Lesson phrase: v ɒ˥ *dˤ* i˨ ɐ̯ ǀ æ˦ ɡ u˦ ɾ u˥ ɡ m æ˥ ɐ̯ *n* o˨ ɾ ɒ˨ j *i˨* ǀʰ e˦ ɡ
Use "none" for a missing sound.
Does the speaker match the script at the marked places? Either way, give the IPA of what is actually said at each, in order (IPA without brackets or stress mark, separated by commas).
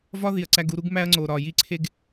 ð, ŋ͡ǀ, i˦